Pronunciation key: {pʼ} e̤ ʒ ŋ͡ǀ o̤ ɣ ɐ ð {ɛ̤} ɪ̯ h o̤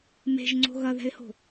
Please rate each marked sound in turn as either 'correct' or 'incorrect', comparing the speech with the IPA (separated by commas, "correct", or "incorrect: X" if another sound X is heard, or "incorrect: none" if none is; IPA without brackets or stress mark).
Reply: incorrect: m, correct